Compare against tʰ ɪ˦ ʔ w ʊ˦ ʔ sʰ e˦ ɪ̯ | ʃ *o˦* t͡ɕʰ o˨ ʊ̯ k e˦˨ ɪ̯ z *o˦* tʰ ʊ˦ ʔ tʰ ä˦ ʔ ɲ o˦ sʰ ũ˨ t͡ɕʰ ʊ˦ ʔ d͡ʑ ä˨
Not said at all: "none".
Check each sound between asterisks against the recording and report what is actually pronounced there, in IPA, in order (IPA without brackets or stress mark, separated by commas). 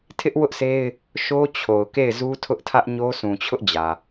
o˦, u˦